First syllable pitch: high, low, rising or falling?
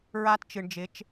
high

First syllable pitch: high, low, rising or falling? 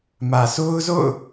low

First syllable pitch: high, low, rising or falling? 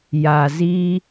low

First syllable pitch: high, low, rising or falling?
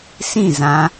falling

